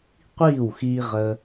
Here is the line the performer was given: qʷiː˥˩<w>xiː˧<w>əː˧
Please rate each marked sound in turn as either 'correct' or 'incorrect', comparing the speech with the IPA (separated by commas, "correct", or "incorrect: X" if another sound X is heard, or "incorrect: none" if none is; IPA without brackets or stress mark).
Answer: correct, incorrect: ʁ